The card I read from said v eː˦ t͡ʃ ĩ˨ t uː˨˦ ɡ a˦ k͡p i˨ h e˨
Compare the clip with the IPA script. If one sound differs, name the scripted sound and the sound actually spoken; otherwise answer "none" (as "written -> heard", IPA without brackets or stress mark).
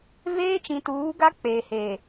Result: i˨ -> e˨